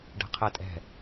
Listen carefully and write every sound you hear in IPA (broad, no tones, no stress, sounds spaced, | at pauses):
ɖ ɛ̤ qʰ ɛ tʼ ɛ̤